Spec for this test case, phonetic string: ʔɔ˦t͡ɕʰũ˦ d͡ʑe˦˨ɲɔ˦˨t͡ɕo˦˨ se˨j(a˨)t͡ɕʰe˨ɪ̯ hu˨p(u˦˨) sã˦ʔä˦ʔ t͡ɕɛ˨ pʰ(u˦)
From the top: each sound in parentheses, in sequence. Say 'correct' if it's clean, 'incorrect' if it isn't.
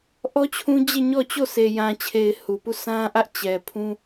incorrect, correct, incorrect

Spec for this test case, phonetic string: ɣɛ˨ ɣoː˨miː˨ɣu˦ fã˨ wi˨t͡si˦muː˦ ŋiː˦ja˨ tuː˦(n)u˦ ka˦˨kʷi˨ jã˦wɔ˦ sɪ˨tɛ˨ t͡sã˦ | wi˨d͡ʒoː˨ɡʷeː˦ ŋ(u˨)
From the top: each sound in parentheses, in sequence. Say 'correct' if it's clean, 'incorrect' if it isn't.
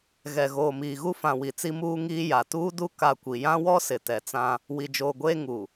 incorrect, correct

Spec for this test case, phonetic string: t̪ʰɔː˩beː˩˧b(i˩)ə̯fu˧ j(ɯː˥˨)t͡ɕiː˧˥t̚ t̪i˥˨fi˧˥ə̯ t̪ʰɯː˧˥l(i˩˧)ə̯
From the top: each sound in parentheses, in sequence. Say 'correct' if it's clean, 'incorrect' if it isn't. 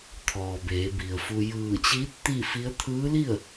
correct, incorrect, incorrect

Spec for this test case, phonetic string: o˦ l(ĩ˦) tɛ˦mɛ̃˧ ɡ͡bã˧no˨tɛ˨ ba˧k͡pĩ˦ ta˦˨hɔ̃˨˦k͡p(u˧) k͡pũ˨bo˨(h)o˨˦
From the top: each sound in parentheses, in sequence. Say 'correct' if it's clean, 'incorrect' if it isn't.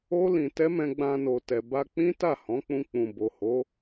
incorrect, incorrect, correct

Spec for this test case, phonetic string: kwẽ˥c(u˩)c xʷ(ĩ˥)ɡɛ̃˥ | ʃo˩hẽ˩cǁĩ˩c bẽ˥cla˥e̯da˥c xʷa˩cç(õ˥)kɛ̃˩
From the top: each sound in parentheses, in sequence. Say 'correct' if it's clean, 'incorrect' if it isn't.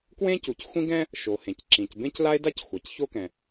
correct, correct, incorrect

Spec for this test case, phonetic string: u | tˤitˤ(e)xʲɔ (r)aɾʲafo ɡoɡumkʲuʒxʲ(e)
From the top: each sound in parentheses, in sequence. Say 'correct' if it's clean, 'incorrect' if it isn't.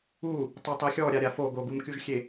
incorrect, incorrect, correct

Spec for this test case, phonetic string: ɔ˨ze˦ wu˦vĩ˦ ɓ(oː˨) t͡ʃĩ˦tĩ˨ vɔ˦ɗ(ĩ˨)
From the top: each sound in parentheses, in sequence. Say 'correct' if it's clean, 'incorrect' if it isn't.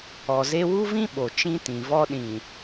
incorrect, correct

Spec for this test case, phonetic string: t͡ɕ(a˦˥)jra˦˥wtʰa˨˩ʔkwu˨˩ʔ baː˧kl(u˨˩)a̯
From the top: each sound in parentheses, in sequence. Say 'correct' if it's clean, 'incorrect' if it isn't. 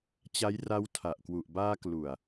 correct, correct

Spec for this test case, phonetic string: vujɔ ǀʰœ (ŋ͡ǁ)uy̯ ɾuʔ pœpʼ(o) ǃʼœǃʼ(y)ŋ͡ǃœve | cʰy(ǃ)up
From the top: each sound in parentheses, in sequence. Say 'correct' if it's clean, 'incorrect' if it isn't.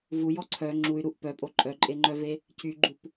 correct, correct, incorrect, incorrect

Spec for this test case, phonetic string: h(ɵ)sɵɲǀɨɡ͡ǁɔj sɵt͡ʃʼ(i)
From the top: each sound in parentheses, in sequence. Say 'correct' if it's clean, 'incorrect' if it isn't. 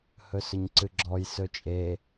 correct, incorrect

